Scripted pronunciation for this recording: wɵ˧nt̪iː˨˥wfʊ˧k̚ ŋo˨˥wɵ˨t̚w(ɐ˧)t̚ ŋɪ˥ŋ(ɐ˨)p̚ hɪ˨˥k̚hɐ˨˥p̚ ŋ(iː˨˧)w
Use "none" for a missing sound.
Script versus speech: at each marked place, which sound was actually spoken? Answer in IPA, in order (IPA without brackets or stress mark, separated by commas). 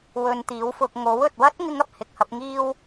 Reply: ɐ˥, ɐ˧, iː˧